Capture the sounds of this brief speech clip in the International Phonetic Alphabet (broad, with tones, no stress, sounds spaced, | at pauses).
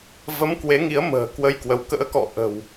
v ə˨˦ m k w e˨˦ ŋ i˨˦ ə̯ m ə̤ː˨˩ k w ə˧ j k w ə˨˦ w k ə̰ː˧˥ k ɔ̰˧˨ ʔ ə̤˨˩ w